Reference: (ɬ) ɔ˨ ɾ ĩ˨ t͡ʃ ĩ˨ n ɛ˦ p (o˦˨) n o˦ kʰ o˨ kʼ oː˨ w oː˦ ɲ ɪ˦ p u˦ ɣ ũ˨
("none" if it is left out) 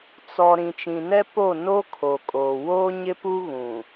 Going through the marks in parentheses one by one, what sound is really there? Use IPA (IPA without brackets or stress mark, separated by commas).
t͡s, o˦˨